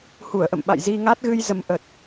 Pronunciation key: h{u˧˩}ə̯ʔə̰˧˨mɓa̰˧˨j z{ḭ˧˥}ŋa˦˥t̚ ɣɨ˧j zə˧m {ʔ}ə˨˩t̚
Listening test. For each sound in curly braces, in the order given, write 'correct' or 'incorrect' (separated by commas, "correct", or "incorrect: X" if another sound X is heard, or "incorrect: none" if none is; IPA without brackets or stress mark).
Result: correct, incorrect: i˧, correct